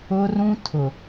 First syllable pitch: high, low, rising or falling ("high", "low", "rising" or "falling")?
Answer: high